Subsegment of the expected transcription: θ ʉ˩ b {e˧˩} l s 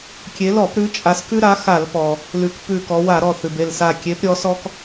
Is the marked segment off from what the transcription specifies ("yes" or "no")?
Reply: no